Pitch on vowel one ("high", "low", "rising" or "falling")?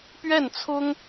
falling